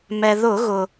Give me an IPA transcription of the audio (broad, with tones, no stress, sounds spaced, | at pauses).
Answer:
m ɛ˩ ð ʊ˧˩˧ ɣ ʊ˩